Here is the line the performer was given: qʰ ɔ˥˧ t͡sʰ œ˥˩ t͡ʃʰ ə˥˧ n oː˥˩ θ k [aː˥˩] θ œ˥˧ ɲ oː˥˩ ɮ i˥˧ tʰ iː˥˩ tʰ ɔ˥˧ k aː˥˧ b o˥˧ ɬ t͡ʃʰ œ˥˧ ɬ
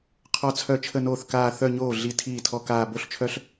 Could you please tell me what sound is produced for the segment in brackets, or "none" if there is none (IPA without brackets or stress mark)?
aː˥˧